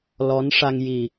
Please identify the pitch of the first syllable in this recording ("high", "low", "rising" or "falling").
rising